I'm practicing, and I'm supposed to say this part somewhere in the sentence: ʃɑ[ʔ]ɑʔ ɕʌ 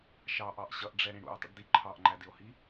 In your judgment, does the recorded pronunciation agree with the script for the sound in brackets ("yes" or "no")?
yes